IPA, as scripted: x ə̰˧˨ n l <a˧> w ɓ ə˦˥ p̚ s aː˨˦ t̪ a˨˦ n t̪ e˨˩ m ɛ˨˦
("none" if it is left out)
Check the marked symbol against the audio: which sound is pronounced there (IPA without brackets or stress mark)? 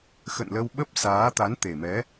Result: ə˧